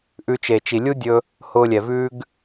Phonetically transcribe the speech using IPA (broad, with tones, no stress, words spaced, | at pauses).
ʔʉ˧t͡ʃe˨ t͡ʃi˨lʲu˦dʲɵ˧ | hʊː˧lʲɛ˨vʉː˦ɡ